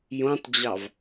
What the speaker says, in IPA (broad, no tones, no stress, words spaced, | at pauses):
jõtˤd͡ʑɑv